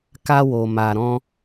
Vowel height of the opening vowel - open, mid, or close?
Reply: open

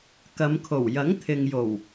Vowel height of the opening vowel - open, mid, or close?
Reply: open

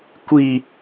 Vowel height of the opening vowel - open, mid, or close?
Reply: close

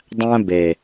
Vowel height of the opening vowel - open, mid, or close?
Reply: open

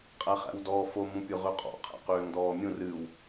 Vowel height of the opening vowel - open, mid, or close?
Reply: open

